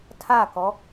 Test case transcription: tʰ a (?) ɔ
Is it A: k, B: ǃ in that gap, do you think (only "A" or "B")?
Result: A